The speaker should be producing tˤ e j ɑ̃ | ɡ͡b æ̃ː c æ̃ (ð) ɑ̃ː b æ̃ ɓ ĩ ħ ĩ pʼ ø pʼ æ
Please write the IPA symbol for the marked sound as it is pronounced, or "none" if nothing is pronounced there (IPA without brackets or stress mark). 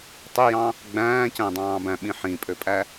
dˤ